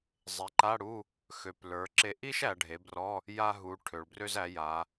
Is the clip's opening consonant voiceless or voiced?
voiced